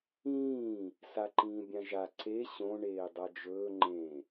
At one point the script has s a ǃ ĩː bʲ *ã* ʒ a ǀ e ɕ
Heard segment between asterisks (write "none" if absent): ã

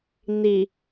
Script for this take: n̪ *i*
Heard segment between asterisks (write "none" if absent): i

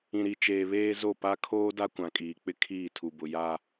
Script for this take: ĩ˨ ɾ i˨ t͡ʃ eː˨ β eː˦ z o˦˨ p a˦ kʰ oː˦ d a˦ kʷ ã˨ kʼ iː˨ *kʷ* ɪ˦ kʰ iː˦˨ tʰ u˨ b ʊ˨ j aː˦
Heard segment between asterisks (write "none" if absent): k͡p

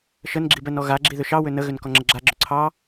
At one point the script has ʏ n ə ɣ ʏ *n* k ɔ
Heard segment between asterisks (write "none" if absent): n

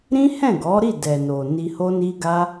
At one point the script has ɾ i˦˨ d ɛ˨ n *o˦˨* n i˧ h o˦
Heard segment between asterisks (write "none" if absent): o˨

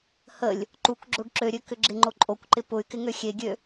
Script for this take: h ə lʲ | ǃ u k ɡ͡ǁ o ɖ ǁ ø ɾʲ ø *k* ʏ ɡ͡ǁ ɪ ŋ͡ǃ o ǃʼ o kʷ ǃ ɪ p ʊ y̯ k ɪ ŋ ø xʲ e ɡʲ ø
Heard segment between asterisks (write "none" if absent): k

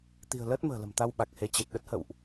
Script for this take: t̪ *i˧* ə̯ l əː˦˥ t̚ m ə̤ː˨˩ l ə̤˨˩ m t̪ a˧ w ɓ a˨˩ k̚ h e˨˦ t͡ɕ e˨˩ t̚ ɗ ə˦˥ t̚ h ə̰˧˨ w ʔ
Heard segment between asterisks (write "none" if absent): i̤˨˩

